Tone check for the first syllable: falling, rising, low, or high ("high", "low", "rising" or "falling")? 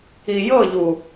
low